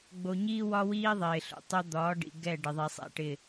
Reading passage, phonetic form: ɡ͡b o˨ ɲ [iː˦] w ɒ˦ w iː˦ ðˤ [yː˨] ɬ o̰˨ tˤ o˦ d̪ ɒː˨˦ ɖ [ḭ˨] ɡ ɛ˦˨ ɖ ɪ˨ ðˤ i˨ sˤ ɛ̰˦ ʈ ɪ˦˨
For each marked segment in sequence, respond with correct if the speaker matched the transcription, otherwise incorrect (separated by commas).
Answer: correct, incorrect, correct